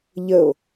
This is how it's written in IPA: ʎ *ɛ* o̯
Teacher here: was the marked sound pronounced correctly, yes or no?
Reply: no